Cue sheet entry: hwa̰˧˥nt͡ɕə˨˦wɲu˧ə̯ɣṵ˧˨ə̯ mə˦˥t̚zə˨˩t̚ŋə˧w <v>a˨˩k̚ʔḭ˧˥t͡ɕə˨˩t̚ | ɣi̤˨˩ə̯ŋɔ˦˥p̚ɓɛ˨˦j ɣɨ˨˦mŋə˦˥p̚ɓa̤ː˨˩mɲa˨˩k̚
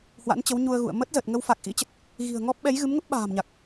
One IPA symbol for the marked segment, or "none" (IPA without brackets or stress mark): f